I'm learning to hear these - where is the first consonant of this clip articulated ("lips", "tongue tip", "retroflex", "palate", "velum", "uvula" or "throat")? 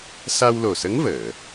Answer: tongue tip